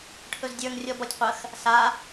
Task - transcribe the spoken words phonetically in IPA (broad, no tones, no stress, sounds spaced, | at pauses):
ʈʰ ɵ z dʲ ə˞ ŋ rʲ ɔ b ɔ tʲ qʷ ə x | s a